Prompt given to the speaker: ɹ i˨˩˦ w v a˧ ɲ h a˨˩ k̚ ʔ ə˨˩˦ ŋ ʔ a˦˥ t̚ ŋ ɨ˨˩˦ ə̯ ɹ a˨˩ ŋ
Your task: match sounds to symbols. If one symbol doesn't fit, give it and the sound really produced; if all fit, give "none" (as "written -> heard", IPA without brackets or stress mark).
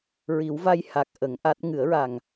ɲ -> j